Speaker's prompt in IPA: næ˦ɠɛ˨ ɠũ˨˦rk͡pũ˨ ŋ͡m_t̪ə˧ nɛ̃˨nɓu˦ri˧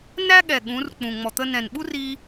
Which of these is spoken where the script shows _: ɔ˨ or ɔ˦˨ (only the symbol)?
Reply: ɔ˨